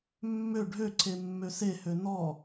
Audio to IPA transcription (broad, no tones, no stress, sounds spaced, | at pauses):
mː ø ɖʱ ø ǀʰ e mː ø s e h ø n ɔ